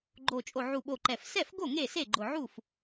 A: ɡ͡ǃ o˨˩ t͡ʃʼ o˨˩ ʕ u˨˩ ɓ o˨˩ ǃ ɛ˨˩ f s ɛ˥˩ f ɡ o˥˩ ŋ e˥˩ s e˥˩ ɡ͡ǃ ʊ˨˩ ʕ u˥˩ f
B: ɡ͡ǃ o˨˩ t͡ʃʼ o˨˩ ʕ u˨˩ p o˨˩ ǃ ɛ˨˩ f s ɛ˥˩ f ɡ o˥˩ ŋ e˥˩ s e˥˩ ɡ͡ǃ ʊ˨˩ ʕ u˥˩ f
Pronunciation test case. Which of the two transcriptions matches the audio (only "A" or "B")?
A